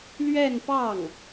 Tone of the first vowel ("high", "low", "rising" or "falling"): falling